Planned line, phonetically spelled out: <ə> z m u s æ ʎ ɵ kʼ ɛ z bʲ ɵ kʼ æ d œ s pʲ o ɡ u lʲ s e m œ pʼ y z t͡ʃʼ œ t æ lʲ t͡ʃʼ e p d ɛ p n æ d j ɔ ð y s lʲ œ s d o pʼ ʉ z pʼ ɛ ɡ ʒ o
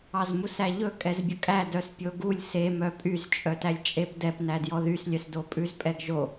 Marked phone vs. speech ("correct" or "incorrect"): incorrect